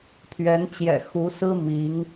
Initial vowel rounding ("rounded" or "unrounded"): unrounded